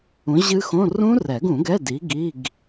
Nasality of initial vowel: nasal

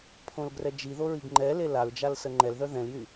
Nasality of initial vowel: nasal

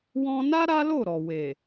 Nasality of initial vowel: nasal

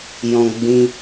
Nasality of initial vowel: nasal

